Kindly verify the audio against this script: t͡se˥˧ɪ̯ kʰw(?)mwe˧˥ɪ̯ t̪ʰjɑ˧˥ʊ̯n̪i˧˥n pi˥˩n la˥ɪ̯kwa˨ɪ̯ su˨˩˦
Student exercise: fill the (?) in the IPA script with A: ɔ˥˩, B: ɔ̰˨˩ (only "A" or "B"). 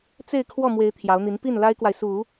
A